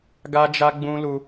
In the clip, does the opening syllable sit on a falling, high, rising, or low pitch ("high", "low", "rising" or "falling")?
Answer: high